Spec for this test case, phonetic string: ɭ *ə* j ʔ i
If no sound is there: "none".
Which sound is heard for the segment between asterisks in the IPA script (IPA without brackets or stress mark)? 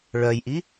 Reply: œ